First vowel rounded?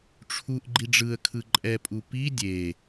yes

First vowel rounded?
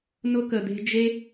yes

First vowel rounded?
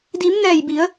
no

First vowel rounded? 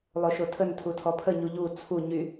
yes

